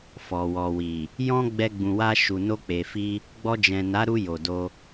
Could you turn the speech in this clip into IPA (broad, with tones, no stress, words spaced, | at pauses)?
fɔ˨wɔ˨wi˨ | jɔ̃˦ ɡ͡bɛ˧ɡ͡bũ˨wa˧ ʃu˨no˧k͡pe˨fi˧ | ɡ͡bɔ˧d͡ʒɛ̃˨na˨˦ ɾu˧ jo˨do˧